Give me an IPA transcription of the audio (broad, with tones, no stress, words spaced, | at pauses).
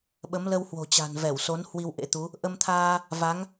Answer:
ɓə˨˦mlə˧whwo̤˨˩t͡ɕa̤˨˩n vɛ˧˩wso˨˦n hwi˧wʔḛ˧˥t̪u˨˦ | ʔə˧mt̪ʰaː˧ | va˨˦ŋ